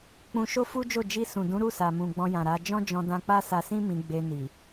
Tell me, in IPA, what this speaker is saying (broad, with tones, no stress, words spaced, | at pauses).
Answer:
k͡pũ˧ʃo˦fu˦d͡ʒo˦˨ d͡ʒi˧sũ˨dũ˨˦ ɾu˦˨sa˨mũ˨ ɡ͡bɔ̃˧jã˨ɾa˨˦ d͡ʒɔ̃˦d͡ʒɔ̃˧dã˧ k͡pa˦sa˧sĩ˦ mĩ˧ ɡ͡be˧ni˨